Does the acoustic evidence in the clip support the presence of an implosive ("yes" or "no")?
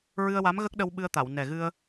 yes